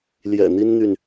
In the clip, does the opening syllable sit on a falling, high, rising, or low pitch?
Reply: low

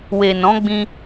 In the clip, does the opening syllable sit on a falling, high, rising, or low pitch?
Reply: low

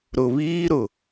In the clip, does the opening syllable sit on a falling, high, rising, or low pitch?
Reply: low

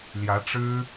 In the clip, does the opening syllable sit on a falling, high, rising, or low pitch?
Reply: rising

